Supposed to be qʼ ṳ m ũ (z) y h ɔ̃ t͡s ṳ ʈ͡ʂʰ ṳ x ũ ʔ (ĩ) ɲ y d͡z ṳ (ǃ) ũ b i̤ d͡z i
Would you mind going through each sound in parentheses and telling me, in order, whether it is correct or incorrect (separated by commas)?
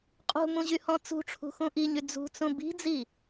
incorrect, incorrect, incorrect